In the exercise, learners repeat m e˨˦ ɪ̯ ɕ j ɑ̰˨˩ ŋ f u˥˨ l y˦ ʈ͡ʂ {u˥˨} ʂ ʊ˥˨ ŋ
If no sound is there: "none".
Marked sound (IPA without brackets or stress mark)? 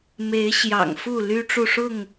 u˥˨